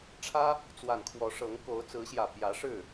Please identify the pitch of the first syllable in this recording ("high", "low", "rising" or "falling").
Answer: high